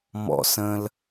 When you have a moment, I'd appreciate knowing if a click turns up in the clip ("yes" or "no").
no